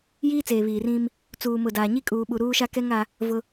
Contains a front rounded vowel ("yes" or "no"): no